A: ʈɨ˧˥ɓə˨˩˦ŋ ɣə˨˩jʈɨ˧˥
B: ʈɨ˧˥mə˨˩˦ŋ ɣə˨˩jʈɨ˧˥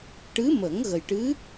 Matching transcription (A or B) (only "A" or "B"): B